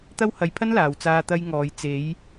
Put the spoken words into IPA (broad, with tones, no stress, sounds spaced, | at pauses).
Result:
t̪ ɐ˥ w h ɐ˧ j pʰ ɐ˥ n l aː˨ w t͡s aː˧ t̪ ɐ˧ j ŋ ɔː˨ j t͡s e˨˧ j